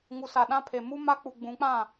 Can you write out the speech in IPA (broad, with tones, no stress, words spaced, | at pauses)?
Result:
ŋu˨sa˨ɗã˦pʰe˨ mu˦ma˦k͡pu˨ ɡ͡bũ˨˦ k͡pã˦˨